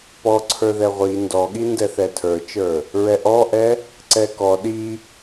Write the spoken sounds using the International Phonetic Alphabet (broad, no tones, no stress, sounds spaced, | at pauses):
p ɔ ǀʰ ə˞ ð ɛ ʁʷ i n d ɔ ɠ i n d ɛ θ ɛ tʰ ə˞ t͡ʃ ə˞ | ɹ ɛ ʔ ɔ ʔ ɛ | ǀ ɛ k ɔ ɗ i